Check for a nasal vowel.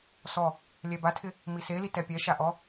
absent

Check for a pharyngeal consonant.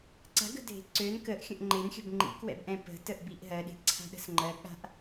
absent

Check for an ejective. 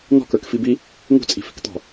present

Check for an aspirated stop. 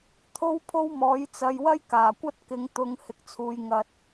present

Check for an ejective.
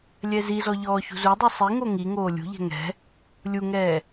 absent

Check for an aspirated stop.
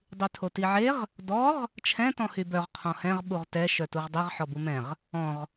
present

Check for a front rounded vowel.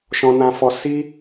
absent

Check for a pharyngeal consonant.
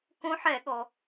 present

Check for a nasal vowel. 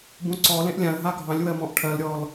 present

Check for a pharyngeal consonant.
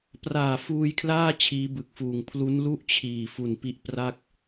absent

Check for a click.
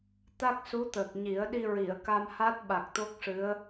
absent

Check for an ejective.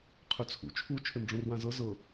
absent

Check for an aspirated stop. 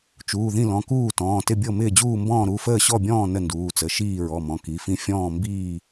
absent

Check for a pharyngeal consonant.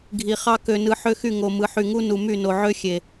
present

